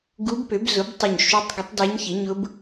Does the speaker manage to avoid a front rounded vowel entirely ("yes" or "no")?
no